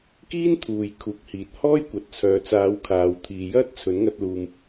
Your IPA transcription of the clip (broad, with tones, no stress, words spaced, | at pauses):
kiː˥nt̪ʰuː˨j kʰuː˨˥k̚hiː˨t̚ hɔː˥jkʷɐ˨t̚t͡sʰœː˨t͡saː˨˧w kʰaː˨wt̪ʰiː˨jɐ˥t̚ t͡sʰɵ˨˥nŋɐ˧t̚luː˨m